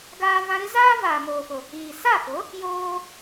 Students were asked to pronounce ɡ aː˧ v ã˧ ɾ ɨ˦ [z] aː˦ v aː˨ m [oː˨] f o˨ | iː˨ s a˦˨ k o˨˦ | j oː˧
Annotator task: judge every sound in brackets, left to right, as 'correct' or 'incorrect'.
correct, correct

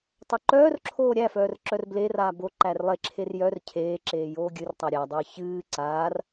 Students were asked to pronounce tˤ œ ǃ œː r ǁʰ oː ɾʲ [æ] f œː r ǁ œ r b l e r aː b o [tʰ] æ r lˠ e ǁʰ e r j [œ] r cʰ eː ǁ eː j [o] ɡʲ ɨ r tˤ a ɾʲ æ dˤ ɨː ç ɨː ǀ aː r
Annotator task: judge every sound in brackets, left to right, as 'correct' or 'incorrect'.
correct, incorrect: ǃ, correct, incorrect: oː

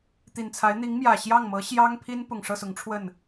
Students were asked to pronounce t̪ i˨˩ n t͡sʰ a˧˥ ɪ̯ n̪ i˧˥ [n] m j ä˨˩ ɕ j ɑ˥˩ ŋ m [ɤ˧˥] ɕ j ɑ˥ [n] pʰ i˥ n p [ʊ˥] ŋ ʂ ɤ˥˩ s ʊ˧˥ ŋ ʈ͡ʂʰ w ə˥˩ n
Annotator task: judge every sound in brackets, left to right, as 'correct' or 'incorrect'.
incorrect: ŋ, correct, incorrect: ŋ, incorrect: ʊ˨˩

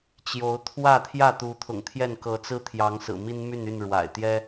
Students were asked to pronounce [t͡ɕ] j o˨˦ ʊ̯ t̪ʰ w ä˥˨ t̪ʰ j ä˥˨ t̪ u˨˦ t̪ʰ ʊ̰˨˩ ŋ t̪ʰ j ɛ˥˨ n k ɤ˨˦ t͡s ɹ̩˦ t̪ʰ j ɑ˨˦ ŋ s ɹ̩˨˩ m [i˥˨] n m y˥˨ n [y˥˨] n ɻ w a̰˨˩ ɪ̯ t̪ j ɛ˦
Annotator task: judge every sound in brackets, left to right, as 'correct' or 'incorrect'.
correct, incorrect: i˦, correct

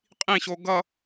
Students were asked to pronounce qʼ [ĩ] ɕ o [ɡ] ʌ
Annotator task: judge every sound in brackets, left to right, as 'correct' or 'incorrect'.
correct, correct

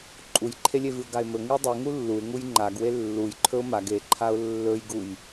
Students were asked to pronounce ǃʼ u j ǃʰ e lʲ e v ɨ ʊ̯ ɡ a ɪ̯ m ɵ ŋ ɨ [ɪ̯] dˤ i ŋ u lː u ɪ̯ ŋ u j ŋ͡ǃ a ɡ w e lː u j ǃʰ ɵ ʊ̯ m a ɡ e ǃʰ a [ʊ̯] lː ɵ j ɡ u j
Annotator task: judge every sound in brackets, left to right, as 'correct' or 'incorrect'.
correct, correct

